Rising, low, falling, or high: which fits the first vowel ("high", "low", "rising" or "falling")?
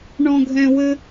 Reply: high